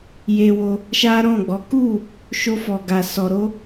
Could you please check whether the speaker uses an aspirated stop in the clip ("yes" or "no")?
no